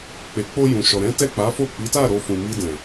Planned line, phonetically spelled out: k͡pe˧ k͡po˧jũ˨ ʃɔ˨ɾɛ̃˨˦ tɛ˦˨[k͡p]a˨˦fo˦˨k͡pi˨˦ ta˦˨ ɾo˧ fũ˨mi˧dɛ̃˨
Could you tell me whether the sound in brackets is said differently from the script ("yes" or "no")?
no